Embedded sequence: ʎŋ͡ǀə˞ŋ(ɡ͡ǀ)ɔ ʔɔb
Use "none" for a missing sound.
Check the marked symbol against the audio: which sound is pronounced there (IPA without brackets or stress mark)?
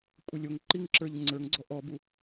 ɡ͡ǀ